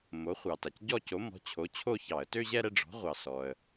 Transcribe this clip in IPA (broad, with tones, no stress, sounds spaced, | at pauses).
m o˩˥ χʷ ɑ˩ t a˩ c ɟ ɔ˥˧ c o˩˥ m ɔ̤˩˥ t͡ɕʰ o˩˥ t͡ɕʰ o˥˧ ç ɑ˧˩˧ ə̯ t ø˥˧ ʑ ɛ˥˧ ɾ ɛ˥˧ ɖ͡ʐ ɔ̤˩˥ ʁʷ ɑ˩ s ɔ˩ ə̯